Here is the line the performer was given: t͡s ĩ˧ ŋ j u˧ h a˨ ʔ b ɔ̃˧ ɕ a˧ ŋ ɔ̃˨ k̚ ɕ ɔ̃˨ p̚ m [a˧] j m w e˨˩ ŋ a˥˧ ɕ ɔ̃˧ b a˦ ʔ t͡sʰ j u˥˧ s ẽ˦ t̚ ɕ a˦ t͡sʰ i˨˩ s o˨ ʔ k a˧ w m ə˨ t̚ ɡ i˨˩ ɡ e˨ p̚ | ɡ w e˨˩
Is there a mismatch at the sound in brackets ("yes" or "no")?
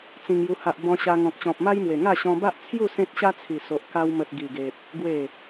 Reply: yes